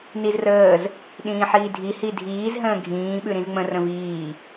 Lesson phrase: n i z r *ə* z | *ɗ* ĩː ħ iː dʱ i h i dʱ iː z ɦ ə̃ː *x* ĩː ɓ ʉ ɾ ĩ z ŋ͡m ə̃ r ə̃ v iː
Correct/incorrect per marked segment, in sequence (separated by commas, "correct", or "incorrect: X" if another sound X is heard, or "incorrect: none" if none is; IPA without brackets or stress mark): incorrect: əː, correct, incorrect: ɡʱ